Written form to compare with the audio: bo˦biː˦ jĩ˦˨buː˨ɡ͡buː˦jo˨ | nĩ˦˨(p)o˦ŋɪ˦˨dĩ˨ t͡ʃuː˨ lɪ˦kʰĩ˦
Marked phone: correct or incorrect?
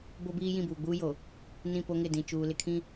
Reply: correct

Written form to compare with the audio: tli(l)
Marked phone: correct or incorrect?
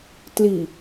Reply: incorrect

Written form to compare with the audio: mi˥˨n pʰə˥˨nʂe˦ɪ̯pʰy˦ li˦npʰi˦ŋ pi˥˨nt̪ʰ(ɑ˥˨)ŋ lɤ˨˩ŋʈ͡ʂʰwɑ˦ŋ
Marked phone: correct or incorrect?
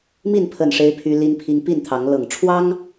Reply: incorrect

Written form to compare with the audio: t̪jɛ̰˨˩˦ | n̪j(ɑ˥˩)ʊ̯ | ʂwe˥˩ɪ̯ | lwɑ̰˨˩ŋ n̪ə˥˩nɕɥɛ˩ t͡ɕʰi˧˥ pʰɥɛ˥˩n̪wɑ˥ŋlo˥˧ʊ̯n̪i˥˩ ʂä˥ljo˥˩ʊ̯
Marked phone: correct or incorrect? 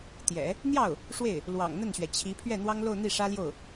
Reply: correct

